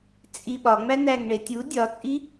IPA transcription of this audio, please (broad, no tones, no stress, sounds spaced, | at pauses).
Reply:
t͡sʼ i ɓ ɒ ŋ͡m æ n æ ŋ ɳ e tʲ u dʲ ɒ t͡sʼ i